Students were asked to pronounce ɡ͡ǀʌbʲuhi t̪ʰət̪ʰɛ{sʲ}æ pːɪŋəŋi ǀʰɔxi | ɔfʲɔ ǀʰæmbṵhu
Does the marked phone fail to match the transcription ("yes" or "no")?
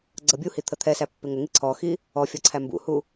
yes